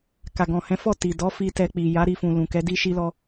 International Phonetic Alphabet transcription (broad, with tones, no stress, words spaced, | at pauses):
ka˨ɡɔ̃˨hɛ̃˨˦fɔ˦˨ ti˨dɔ˨˦fi˧ tɛ˧k͡pi˨ ja˨˦ɾi˧fũ˨lũ˨ kɛ˨˦di˦ʃi˦lɔ˦